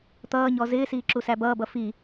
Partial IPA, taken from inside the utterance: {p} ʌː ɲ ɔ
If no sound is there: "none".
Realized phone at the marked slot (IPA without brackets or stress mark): t̪